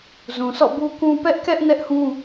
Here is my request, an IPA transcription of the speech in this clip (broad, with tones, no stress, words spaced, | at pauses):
zũ˨sɔ̰˦˨bu˦kũ˦ pɛ˦ʔkɛ˦ʔ nɛ˦ʔhũ˦